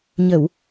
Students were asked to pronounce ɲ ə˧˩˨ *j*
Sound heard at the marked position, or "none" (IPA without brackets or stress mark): w